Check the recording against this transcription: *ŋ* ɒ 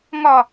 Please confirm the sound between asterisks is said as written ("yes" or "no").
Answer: yes